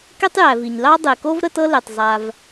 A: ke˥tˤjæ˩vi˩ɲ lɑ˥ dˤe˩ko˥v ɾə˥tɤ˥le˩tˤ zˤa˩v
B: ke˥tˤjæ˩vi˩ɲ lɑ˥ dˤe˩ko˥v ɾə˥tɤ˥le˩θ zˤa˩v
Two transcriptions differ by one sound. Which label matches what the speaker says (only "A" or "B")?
A